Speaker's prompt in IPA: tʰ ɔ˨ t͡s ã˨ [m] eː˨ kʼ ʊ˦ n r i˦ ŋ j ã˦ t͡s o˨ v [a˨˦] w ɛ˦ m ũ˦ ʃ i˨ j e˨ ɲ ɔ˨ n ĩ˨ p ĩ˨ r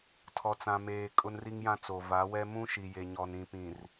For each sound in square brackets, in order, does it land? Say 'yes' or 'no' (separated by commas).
yes, yes